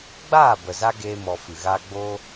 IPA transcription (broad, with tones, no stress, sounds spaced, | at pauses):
ɡ͡b aː˦˨ b ə˨ z a˧ ɡ eː˦ m ɔ˧ f ɨ˨ ɣ aː˧ ɡ͡b oː˦